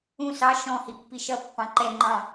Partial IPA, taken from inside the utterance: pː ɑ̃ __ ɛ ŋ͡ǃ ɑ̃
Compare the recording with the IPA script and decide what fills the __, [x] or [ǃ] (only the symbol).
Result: ǃ